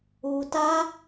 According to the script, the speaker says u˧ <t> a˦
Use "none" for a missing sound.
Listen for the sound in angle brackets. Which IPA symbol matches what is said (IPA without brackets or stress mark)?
t